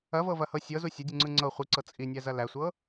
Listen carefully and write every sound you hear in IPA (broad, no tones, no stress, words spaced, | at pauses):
ɐvɤvɐhɤ sʲɤzu sʲɐdʲuŋ͡ǀɯ ŋ͡ǀɤ χʷiǀɤ t͡sʼinʲæzɐ læsʷɤ